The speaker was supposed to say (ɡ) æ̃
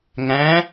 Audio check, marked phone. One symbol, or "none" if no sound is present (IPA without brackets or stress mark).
ŋ